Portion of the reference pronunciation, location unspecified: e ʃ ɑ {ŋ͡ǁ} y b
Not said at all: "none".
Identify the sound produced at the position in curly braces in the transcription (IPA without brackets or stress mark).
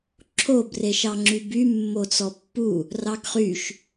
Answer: ŋ͡ǁ